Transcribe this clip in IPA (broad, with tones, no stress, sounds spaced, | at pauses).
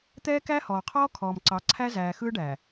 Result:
t̪ ɛː˦ k æ˦ h ɔː˨ qʰ ɔː˦ kʰ ɔː˨ m ǀ ɑ˨˦ ǀʰ æ˦ z æː˨ x ɯː˦ ɖ æː˨